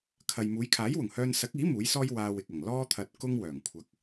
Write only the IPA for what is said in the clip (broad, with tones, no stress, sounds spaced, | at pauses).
kʰ ɐ˨ j m uː˨˧ j kʰ aː˨˥ j w ʊ˨˩ ŋ h œː˧ n s ɐ˨˥ k̚ iː˨˥ m uː˨˥ j s ɔː˥ j w aː˧ w ɪ˨ k̚ ɐ˨˩ ŋ l ɔː˥ t̪ʰ ɐ˧ t̚ k ʊ˥ ŋ w œː˨˩ ŋ kʷʰ ɐ˧ k̚